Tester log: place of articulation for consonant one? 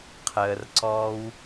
uvular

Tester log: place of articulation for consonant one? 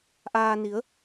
glottal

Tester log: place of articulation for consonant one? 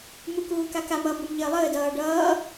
labial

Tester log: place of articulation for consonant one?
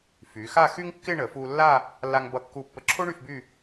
labial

